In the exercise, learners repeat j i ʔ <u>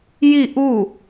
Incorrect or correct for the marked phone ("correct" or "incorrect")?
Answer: correct